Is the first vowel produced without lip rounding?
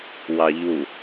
yes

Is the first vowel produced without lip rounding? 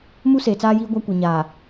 no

